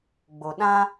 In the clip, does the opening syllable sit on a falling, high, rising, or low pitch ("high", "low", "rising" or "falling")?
low